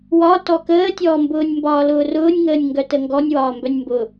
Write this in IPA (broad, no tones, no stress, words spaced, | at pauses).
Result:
wɒtɔ kəːtʲɔːmbʊːnʲ mbɒːlʊːrʊːnʲŋəːnʲ ŋɡœtəŋɡɔnʲ wɒːmbœnʲmbʊ